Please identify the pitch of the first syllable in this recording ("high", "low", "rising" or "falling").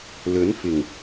rising